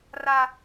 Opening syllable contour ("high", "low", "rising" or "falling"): high